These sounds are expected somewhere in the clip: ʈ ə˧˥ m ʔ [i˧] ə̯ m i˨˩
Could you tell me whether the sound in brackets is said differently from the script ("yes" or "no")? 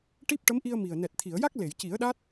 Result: no